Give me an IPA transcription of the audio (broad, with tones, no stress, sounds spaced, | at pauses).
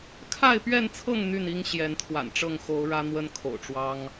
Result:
kʰ a˥˨ ɪ̯ p ɥ ɛ˥˨ n t͡sʰ ɤ˥˨ ŋ n̪ y˥˨ n i˦ ŋ ɕ j ɛ˨˦ n t̪ʰ w a̰˨˩ n ʈ͡ʂ ɤ˥˨ ŋ x o˨˦ ʊ̯ ɻ ä˦ n̪ w ə˦ n kʰ o̰˨˩ ʊ̯ ʈ͡ʂ w ɑ˦ ŋ